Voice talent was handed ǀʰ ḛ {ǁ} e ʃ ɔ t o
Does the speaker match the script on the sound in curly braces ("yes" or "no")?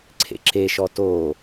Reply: yes